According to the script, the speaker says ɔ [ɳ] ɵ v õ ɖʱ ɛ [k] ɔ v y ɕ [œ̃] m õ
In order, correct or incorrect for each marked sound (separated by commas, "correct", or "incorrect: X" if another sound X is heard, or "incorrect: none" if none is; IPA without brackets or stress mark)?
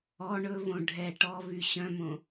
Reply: correct, incorrect: ʈ, correct